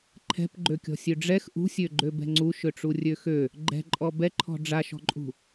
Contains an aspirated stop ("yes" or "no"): yes